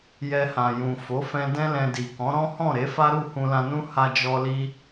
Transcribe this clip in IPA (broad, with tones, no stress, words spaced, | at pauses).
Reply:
jɛ˧hã˨jũ˨ fo˨˦fɛ̃˧ dɛ̃˦lɛ̃˧di˨ kɔ̃˨˦ɾɔ̃˦ hɔ̃˦˨ɾe˨˦fa˦ɾu˦˨ hũ˧lã˧nũ˦ ha˦d͡ʒɔ˦ li˦